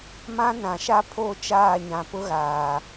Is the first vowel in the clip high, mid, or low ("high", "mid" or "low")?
low